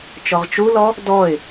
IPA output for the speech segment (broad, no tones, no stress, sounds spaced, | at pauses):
t͡ʃ ɔ ʁ t͡ʃ u l ɔ | d ɔ ɪ̯